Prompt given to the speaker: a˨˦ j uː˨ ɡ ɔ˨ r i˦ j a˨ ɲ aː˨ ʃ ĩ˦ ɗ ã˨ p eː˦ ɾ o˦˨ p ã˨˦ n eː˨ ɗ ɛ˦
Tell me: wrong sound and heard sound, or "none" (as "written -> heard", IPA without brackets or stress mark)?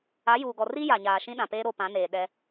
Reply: none